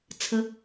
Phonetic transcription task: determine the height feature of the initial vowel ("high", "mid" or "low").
mid